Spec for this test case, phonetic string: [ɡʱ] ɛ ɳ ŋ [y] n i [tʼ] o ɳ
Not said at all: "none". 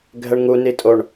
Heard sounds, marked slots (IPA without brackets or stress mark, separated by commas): ɡʱ, u, tʼ